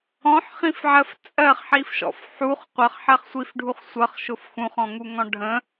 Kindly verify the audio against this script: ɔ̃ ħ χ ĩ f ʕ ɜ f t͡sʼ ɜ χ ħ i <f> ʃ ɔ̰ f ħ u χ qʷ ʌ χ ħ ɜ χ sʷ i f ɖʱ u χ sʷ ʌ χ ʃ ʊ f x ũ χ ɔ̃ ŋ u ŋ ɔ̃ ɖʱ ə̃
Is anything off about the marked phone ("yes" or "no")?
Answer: no